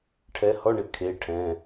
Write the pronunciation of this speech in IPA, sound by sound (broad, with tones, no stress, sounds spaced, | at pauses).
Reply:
ʈʰ ɛ˨˥ h ɔ˧˥˧ ɳ ɪ˩˧˩ kʰ e˩˧˩ ʈʰ ɛ̃˩˧˩